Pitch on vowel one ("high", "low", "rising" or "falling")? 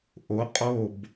rising